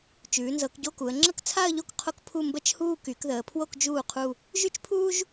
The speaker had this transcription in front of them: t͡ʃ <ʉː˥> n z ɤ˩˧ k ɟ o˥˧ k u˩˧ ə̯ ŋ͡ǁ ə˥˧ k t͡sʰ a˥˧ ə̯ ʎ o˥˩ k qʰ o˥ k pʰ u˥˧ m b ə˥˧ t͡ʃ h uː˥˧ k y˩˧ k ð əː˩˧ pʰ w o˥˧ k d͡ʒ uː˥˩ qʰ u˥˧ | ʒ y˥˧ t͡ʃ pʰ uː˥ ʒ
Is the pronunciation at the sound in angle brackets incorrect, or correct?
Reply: incorrect